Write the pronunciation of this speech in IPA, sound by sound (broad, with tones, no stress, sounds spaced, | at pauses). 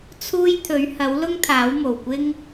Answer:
t͡sʰ uː˥ j t̪ʰ ɵ˨˥ ɥ h ɐ˨˥ w l ʊ˥ ŋ t̪ʰ aː˨˥ w m o˨˩ w kʷ ɪ˥ ŋ